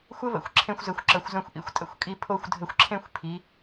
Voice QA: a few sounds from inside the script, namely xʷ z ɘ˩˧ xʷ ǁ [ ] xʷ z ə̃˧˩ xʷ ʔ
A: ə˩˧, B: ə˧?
A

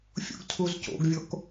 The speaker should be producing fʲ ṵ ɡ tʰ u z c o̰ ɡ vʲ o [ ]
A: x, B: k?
B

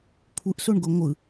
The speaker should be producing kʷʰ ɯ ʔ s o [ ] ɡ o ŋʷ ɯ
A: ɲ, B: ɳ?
B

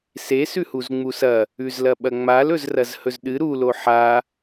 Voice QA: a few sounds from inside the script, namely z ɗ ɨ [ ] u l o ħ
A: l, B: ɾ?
B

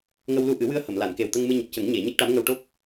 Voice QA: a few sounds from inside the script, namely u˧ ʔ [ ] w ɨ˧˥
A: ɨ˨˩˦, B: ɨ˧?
A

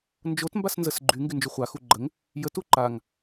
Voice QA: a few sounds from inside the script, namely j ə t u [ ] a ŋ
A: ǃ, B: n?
A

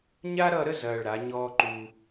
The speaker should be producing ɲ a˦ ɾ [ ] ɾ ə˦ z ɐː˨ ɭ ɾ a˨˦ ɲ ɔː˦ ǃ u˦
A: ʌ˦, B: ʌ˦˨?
B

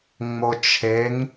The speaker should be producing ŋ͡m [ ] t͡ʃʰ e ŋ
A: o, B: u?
A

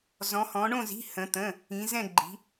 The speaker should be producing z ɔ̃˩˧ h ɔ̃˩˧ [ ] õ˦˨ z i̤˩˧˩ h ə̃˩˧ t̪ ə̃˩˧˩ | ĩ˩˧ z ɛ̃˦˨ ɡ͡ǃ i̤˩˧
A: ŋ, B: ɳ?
B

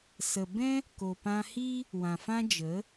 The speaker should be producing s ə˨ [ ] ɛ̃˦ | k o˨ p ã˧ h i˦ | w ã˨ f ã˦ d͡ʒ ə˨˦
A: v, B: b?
B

